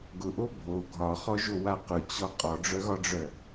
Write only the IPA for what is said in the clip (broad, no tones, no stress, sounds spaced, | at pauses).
ɡ ʊ ʔ o bʱ o ɡʱ ɒ χ ɔ ʒ o w a q ʊ t͡ɕ ɔ qʼ ɔ ɖ͡ʐ œ ɣ ɒ ɖ͡ʐ œ